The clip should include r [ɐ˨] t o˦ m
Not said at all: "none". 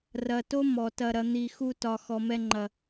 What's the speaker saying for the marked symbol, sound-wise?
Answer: ɐ˨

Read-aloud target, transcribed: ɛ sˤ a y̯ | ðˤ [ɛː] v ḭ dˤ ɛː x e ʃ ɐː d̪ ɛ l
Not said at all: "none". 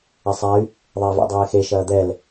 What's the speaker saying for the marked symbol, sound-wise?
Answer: ɛː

